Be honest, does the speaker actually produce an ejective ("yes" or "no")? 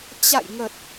no